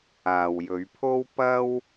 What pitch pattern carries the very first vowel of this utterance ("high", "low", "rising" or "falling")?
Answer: low